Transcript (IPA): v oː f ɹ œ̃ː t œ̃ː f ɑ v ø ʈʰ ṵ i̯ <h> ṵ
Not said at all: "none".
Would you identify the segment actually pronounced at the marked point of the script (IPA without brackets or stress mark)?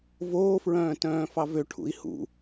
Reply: h